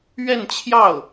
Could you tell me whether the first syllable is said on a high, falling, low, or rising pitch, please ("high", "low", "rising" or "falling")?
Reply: falling